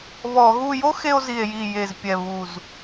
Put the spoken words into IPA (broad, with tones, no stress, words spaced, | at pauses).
βɔ˧˩˧ɣu˥˧ jo˦˥xe˧o̯zi˨˩e̯ji˨˩ je˨˩zpʲɛ˨˩βu˨˩z